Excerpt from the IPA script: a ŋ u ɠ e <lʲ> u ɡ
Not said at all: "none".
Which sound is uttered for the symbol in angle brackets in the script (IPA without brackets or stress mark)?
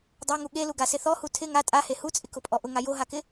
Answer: l